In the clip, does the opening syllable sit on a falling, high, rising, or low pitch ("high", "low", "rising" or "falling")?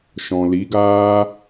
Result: low